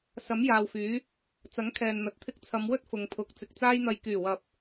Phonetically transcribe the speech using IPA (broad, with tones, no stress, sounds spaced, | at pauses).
s ɐ˨˥ m j aː˨ w f yː˨˥ | t͡s ɐ˨˥ ŋ kʰ ɛː˨ n n̪ ɐ˨ t̚ t̪ʰ ɪ˧ k̚ t͡sʰ ɐ˨˧ m w ɵ˥ t̚ f ʊ˨ ŋ pʰ ʊ˨˥ k̚ t͡s ɪ˨ k̚ t͡s aː˥ j n̪ ɐ˧ j k yː˨˩ w ɐ˨ p̚